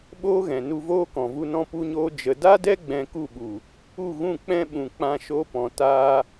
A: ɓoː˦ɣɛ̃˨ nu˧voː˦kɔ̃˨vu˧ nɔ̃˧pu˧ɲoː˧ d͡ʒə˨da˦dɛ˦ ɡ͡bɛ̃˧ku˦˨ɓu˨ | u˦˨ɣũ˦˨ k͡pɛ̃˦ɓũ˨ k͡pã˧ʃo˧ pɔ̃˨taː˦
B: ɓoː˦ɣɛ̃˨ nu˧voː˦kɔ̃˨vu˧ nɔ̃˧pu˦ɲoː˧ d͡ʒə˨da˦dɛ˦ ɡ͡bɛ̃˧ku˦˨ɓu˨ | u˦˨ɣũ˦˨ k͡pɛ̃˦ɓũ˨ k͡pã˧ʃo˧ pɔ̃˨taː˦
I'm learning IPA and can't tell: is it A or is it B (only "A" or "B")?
A